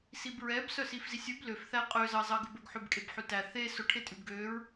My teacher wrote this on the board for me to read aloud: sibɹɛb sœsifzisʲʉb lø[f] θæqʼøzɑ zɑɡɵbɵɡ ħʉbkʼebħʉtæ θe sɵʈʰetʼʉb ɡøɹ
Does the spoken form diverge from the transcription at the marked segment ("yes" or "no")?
no